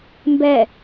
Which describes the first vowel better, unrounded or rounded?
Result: unrounded